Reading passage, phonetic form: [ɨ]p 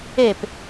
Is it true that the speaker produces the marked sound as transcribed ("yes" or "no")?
no